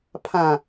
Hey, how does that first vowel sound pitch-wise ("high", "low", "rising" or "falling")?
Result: low